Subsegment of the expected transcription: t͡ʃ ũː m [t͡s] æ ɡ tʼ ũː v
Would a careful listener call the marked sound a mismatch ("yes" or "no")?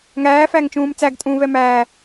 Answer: no